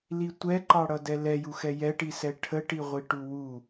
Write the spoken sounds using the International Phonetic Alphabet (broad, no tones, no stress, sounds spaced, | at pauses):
l i tʷ ɛ ǃ ɑ ɽ ʌ d ɛ l ɛ j u x ɛ j ɛ ʈ i s ɛ ʈʰ ə ʈ i ʁʷ i ʈ u w u